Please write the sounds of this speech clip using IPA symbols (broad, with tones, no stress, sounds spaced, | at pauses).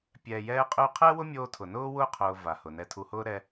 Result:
pʲ ɛː˨ j ɛː˧ qʼ ʉ˧ qʰ ɛ˦ w ʊ˦ mʲ oː˧ tʰ ʊ˨ n ʊː˦ w ʊː˦ qʰ ʊː˧ v a˨ h ʊ˨ n ɛ˧ tʰ u˧ h ʊː˦ ɾ ɛ˦